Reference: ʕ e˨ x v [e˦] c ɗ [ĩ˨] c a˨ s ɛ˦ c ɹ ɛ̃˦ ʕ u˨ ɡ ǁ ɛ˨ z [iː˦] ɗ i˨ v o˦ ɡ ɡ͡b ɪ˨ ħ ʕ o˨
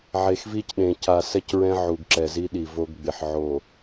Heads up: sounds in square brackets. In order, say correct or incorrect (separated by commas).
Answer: incorrect, incorrect, incorrect